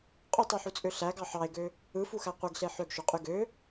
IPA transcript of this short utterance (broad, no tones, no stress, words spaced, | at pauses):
qʼotˤøħut͡sʼø ɬæɡɑ ħɑe̯ɡø | ɯfuxæ qʷeɡɬe ħøɡʃoqʼy ɡø